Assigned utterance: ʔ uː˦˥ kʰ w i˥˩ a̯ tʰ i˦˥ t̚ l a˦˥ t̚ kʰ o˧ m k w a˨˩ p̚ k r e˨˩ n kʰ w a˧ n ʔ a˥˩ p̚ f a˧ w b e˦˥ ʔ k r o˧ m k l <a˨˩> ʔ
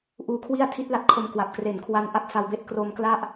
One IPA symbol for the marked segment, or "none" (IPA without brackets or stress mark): a˥˩